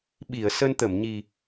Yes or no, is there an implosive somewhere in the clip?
yes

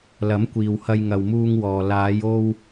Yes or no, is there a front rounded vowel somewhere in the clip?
no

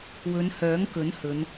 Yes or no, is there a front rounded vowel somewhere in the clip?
yes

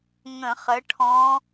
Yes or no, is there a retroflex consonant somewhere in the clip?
yes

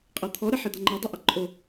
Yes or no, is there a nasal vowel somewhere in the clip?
no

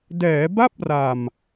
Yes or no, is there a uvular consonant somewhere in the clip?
no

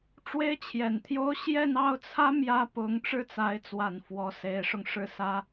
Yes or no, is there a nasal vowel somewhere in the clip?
no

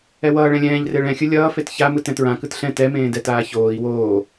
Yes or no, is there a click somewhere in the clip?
no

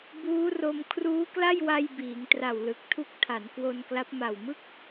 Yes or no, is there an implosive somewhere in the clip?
no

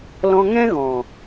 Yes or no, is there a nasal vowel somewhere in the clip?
yes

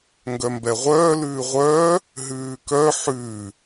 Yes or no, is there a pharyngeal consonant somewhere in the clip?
yes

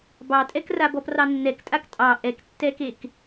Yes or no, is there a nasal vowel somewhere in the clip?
no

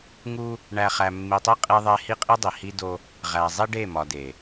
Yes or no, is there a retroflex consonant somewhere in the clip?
yes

